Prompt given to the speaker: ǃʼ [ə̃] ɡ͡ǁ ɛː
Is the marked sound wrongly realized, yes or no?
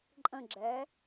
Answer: no